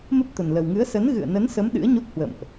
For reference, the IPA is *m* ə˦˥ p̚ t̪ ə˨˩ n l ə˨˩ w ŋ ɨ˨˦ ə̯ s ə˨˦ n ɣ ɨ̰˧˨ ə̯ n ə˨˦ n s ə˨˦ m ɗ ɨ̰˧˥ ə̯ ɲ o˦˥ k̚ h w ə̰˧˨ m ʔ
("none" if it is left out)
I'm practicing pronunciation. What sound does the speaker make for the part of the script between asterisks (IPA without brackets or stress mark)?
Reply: m